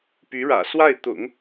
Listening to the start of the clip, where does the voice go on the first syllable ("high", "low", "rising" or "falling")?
rising